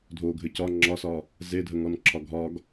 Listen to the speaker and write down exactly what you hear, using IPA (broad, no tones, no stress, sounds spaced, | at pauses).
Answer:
dʱ o ɡʱ ɘ c ɒ ŋ͡ǁ ɒ s ɒ | z e dʱ ə ŋ ɔ n ǁʰ ɒ ɡʱ ɒ ɡ